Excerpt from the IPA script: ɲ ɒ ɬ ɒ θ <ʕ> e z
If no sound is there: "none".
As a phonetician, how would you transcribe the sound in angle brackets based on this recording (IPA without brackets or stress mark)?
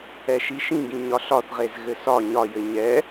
ʁ